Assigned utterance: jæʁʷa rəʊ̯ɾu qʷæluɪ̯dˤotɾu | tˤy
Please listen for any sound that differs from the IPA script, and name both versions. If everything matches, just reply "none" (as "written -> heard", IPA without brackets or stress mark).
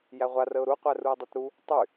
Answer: l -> r